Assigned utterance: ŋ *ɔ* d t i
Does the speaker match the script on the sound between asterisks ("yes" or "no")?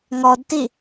yes